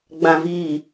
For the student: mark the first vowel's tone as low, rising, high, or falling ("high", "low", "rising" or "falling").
low